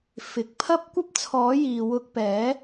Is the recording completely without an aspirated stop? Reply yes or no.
no